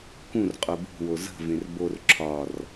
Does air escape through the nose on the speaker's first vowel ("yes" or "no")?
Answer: yes